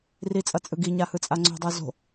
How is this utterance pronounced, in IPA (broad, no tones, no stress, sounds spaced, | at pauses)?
r i t͡sʼ ʌ t͡sʼ ɯ ɡ i ɲ a h ɯ t͡sʼ a ŋ͡ǀ o̤ dˤ ɯ z o̤